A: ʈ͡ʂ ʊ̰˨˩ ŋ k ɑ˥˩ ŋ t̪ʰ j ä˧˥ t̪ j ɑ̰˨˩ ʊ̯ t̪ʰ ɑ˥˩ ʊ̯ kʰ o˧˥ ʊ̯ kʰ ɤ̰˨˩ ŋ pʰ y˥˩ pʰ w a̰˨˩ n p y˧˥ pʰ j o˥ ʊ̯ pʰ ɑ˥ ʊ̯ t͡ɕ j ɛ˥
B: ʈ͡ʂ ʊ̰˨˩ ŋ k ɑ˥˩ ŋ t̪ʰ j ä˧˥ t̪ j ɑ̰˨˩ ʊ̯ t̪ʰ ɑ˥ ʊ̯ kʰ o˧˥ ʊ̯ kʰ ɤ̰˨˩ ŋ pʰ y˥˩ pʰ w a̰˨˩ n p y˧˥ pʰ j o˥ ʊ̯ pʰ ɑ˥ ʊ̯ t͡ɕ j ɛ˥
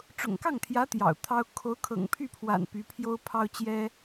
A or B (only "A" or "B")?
B